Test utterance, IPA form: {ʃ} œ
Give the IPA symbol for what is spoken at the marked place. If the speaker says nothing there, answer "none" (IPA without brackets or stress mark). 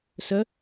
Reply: s